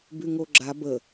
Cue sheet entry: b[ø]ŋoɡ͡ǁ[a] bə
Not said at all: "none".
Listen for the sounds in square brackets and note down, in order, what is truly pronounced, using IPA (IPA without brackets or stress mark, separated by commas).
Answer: y, a